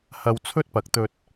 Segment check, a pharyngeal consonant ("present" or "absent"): absent